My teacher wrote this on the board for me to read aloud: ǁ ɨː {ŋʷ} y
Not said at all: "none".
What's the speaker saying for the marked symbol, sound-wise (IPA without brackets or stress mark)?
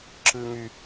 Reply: ŋ